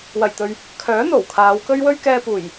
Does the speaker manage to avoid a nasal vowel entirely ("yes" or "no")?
yes